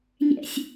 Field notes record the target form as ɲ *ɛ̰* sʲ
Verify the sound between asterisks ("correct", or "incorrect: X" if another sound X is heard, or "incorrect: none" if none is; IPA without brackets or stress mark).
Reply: correct